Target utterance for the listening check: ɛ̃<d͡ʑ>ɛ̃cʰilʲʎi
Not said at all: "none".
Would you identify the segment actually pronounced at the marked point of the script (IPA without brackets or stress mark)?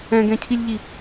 ɡ